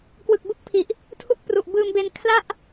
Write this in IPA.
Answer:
k w ɯ˨˩ k̚ b u˥˩ k̚ pʰ i˨˩ ʔ | tʰ u˦˥ k̚ p r u˨˩ ʔ b ɯː˧ m b e˧ n kʰ l a˥˩ ʔ

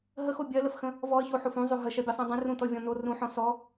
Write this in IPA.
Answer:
ɦ ə x o bʲ ɜ l ə f x ə̃ | v ɔ ə̯ ç o ħ o f ũ zˤ o ɦ ə ʃ ɜ bʲ ɔ sˤ õ dˤ ə̃ r ũ t ɔ vʲ ɔ̃ n o r ũ ħ ɔ̃ s ɔ

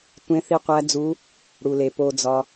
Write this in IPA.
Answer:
tʷ ẽ˧˥ θ i˧˥ qʷ æ˧˥ d͡z u˧˥ | ɽ u˨ l e˨ p o˨ d͡z ɒ˨

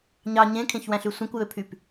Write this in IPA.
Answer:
ɲ ɑ ɲ ẽ kʰ ẽ ç w æ̃ ɬ y sʷ ĩ kʷ j ø pʰ y p

